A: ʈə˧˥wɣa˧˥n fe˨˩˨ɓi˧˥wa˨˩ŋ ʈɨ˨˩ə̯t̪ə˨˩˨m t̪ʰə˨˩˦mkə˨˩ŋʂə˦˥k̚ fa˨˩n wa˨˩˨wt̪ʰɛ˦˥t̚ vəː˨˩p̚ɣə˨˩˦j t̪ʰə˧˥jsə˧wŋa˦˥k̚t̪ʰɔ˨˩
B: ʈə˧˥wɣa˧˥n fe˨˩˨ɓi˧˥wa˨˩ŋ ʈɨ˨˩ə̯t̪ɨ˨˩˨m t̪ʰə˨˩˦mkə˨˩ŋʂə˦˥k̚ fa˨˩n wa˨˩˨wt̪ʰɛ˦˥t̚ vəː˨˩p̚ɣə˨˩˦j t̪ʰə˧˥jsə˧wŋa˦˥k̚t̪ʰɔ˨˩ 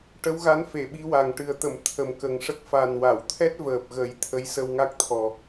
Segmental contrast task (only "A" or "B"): A